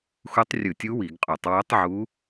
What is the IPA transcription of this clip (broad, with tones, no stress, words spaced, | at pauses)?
xu˧˥tˤrʲɯ˧˩˧tʲu˧˥ wi˧˩˧ɡqʼu˧˩˧tˤ wo˧˥tˤʕu˧˥